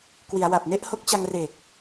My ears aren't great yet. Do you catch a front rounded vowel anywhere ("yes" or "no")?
no